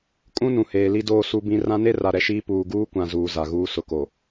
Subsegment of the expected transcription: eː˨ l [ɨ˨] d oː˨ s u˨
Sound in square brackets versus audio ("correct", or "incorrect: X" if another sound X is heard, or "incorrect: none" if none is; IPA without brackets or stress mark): incorrect: i˨